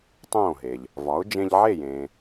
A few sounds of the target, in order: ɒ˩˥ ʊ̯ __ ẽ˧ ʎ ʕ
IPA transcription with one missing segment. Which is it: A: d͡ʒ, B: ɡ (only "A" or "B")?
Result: A